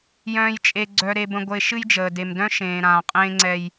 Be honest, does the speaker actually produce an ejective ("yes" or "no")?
yes